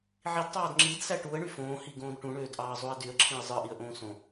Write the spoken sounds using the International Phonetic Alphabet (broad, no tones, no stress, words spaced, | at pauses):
ʕidtˤɑːd ŋ͡ǁidsæ ʈuə̯ɳy fõːhiɡõːd ʈũɳøːdʔɑːzˤoə̯ dyə̯ǁʰĩə̯ zˤɯʔiə̯ʔõː sõ